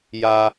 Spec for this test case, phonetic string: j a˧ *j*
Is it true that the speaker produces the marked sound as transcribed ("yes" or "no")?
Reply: no